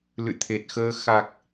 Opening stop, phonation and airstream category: aspirated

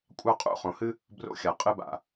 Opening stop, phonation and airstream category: ejective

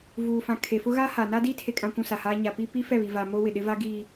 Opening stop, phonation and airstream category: aspirated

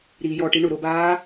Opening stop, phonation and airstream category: plain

